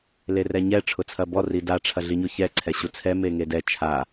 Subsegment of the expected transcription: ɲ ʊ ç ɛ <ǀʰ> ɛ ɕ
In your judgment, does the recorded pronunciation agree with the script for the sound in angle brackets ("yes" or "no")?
yes